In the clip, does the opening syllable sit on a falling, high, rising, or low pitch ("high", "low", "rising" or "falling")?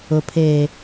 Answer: low